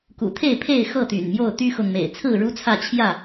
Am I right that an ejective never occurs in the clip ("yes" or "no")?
yes